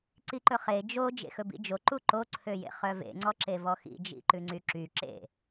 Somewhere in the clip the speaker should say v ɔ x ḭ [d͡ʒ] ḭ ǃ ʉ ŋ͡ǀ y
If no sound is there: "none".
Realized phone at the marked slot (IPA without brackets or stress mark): d͡ʒ